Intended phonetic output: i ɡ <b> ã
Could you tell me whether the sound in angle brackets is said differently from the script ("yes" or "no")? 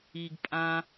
yes